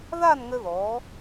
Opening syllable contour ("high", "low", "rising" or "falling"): falling